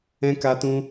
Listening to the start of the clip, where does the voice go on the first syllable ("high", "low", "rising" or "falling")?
high